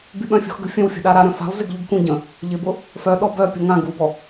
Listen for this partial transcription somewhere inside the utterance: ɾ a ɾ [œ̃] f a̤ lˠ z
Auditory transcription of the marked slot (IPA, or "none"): œ̃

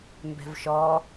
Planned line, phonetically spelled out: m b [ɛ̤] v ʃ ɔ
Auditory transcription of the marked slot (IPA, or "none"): ɛ̤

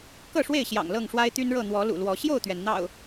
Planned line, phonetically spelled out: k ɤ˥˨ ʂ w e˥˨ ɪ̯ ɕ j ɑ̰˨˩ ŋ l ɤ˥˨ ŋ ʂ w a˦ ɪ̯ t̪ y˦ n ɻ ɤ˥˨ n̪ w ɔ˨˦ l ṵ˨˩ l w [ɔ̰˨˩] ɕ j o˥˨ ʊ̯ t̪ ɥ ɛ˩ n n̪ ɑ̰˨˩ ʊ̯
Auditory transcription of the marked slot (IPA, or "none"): ɔ˨˦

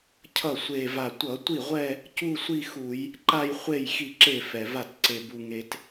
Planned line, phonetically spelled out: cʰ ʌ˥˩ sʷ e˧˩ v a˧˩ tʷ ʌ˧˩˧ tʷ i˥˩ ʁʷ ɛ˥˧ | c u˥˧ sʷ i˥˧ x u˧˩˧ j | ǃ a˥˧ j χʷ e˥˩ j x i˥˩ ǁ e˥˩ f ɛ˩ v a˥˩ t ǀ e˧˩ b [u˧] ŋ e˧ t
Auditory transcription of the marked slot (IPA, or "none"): u˧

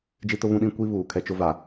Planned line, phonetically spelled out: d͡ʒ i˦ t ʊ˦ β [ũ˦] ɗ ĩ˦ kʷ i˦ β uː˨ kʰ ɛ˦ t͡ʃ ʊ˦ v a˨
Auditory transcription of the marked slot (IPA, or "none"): ũ˦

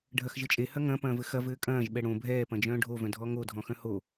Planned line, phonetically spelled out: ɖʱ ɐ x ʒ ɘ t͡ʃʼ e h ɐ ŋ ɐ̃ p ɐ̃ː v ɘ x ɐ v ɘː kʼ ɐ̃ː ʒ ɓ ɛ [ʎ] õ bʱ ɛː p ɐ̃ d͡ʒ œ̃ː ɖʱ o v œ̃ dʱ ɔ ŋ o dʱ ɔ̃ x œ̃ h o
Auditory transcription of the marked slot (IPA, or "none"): ɽ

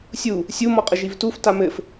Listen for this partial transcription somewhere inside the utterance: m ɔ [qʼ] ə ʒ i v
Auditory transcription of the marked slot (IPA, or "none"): qʼ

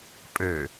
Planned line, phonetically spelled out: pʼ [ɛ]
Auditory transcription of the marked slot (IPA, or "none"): ø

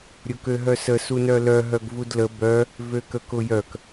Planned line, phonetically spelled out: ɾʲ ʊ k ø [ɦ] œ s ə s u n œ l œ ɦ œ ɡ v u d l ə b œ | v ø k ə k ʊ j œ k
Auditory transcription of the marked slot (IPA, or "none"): ɦ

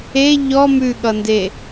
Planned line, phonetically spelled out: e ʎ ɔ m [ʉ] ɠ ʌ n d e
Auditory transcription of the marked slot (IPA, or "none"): ʉ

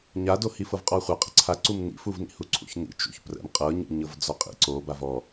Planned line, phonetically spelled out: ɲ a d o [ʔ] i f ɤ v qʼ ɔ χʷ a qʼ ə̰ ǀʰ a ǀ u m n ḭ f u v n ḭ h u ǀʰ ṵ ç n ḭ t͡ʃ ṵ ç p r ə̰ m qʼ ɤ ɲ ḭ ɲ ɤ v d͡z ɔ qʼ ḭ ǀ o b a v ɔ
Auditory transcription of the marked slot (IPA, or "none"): h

